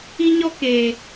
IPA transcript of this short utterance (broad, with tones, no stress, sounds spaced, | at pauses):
i˦ ɲ ɔ˦ k eː˨